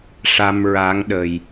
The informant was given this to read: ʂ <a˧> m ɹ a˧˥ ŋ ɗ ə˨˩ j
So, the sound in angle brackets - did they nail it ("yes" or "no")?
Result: yes